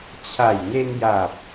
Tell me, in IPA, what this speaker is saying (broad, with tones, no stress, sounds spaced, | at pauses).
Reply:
t͡ɕʰ a˨˩ j n e˧ n j a˨˩ p̚